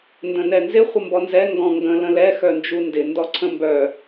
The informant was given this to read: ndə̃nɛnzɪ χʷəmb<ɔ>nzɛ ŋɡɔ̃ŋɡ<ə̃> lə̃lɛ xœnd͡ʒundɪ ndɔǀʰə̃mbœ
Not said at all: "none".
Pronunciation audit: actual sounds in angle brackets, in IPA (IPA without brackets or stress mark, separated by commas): ɔ, ə̃